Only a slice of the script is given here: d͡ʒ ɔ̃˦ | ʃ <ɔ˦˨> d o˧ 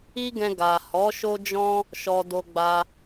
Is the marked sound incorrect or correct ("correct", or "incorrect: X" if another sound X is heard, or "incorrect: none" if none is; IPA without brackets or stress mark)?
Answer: incorrect: ɔ˧